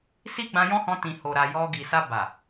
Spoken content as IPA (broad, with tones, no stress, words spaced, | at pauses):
si˦ɡ͡bã˧jɔ̃˦hɔ̃˧ tĩ˨ho˨ɾa˨ jɔ˧ ɡi˨sa˧ ba˨